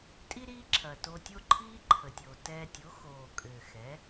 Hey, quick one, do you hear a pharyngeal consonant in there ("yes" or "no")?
no